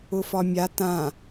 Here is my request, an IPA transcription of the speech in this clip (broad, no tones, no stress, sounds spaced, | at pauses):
ʊ f ɒ mʲ a t ã